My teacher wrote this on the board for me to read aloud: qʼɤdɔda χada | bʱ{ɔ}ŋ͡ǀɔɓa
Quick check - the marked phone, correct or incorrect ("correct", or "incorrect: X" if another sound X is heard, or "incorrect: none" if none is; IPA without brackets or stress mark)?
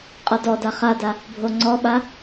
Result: incorrect: o